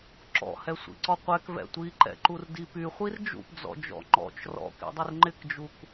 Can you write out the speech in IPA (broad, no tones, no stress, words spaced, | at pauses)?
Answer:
ǁɔ̰hɛ sʷḭǀɔqʷɛk vɛ̰tʷiǃɛ̰ ǃurdipyχʷir d͡ʒṵpd͡zɔ̰d͡ʒɔ̰ ŋ͡ǃɔ̰t͡ʃ rɔ̰kḭdˤɪr ŋ͡ǃɪkd͡ʒuk